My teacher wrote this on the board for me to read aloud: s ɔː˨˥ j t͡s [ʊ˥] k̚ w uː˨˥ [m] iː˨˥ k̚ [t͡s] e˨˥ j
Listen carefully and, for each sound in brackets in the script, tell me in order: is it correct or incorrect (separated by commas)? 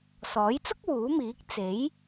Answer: correct, correct, correct